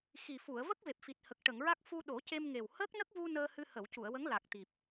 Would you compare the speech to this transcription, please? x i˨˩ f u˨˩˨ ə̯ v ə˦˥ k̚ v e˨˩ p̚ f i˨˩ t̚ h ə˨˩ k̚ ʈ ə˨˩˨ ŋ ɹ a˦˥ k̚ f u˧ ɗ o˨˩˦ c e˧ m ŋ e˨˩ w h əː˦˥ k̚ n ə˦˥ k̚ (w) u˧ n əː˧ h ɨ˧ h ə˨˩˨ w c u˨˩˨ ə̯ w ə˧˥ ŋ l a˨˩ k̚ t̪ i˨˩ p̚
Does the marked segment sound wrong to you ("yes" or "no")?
yes